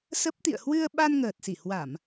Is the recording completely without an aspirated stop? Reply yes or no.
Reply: yes